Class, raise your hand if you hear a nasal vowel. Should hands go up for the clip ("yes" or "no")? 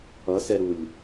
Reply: no